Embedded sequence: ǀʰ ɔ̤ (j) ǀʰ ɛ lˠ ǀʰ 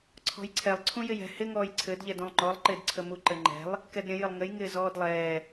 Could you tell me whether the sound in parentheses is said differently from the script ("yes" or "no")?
no